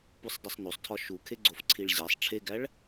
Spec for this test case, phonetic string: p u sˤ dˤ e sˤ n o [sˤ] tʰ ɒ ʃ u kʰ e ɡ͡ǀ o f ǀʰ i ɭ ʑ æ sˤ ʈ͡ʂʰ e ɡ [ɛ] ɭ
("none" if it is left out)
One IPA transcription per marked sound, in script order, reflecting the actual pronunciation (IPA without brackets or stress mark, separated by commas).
sˤ, æ